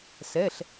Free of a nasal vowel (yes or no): yes